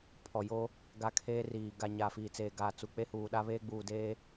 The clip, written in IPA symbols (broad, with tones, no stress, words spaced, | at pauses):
pʰɔ˨jo˦ | ɡa˦kʰeː˦riː˨ ɡa˨ ɲa˨fiː˨t͡seː˨ ɡaː˨t͡su˨ k͡pe˦huː˨ɗa˦ βeː˦ɡ͡buː˨deː˦